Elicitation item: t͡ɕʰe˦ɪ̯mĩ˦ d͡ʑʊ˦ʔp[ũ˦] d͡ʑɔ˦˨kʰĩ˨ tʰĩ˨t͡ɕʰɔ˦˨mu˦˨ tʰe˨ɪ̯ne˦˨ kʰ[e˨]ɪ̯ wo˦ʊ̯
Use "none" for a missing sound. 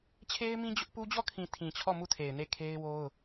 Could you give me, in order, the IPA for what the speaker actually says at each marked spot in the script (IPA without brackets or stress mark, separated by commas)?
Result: u˦, e˦